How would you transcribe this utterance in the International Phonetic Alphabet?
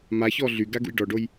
maçɔ ɮyɡa ɡṵjɖɔɖoj

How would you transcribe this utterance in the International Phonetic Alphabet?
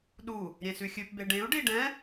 ɗu | ɾʲẽsʉxʲʉpbe ɖẽu̯ ɖiɖɛ̃

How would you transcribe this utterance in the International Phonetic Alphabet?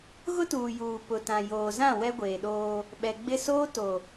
ɣʊ˦tuː˨ juː˨ pʊ˨tã˨ joː˨zã˦˨ wɛ˦ɡʷeː˨ɗoː˦ | ɓɛ˨ɡ͡bɪ˦ soː˦to˨

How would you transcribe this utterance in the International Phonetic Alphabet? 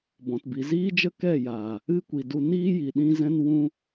bɔ̃˨tbi˨ziː˦d͡ʒə˦ kɛ˦˨jaː˨ | ɨ˦ kʷi˨du˧ niː˦ji˨ ɗĩ˦zɛ̃˦n wũ˧

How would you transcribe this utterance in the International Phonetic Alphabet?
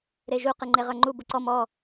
ɾeʒu qɨŋ͡ǃeʁœŋ͡ǃu buǀɔ mɔ

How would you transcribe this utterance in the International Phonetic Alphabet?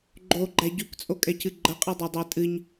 ɡ͡ǃoɡ͡ǃæ ɟykt͡sʼokʼɛcɨ ɡ͡ǃəqʼɛdˤodˤæ tʼɨɲ

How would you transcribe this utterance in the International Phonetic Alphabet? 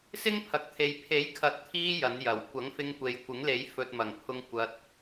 sɪ˥ŋpʰɐ˨k̚ t̪ʰe˨j pʰe˨˥jkʰɐ˨˥t̚t̪ʰiː˧ jɐ˨˥njɐ˨˩w kʷɐ˨˥ŋfɪ˧ŋkʷe˨jkʷɪ˨˥ŋ le˨˥jfɵ˨t̚mɐ˨˩ŋpʰʊ˧ŋ kʷɐ˧t̚

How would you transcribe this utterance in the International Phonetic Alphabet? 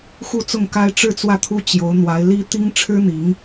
xu˥˧t͡sʊ˥˩ŋka˥ɪ̯ ʈ͡ʂɻ̩˥˧t͡swä˥˩t̪ʰu˥ t͡ɕjo˧˥ʊ̯ n̪wa˧˥ɪ̯li˥ t̪i˥ŋ ʈ͡ʂʰɻ̩˥n̪i˧˥ŋ

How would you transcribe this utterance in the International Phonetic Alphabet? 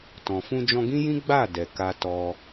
tɔ̃˨fũ˧d͡ʒɔ̃˧ ɡĩ˦jĩ˦ ɡ͡ba˦˨ dɛ˨ka˧tɔ˧

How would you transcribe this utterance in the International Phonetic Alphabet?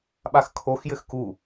ɓaxkʰoxjɘx ku

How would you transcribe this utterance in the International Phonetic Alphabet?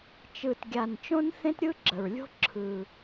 t͡ʃɯ˨˩tɡʲa˨˩n t͡ʃõ˥nθẽ˥tɾʲɯ˥ ɡ͡ǁə˨˩ɹlʲo̤˥ ǁʰɯ˨˩

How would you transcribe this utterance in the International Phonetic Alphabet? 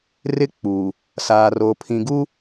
rɪ˦k͡puː˨ | saː˨roː˨pʰĩ˨ɡu˦

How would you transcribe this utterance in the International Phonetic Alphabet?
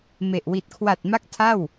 me˨˩ʔ wi˨˩t̚kʰwa˨˩t̚ ma˦˥k̚ tʰa˥˩w

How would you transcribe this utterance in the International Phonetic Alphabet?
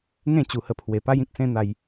ŋẽ˥˧t͡ɕu˨˩hə˧ pʰwe˨˩pa˦jĩ˦k̚ sẽ˦n̪a˧j

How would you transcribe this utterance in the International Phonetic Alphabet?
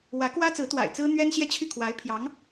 wä˧˥kwä˥t͡sɹ̩˧˥t̪wa̰˨˩ɪ̯ t͡sɹ̩˥n̪ɥɛ˥n ɕjɛ˥˧ t͡ɕʰy˥˩ kʰwa˧˥ɪ̯pʰjɑ˧˥ŋ

